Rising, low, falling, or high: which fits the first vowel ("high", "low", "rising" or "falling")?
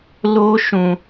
high